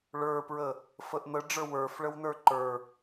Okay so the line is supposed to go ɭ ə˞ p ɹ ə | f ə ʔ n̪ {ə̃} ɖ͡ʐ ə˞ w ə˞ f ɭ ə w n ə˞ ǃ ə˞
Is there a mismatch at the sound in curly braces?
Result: yes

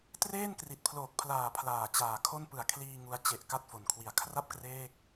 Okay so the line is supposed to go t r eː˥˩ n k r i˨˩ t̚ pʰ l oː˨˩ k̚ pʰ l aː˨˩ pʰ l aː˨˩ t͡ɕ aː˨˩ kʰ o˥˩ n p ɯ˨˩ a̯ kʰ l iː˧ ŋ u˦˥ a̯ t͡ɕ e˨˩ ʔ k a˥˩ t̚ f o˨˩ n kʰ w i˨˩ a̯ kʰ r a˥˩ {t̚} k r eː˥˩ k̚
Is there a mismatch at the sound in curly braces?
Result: yes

